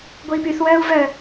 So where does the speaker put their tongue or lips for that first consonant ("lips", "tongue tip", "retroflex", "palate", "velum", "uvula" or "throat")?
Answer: velum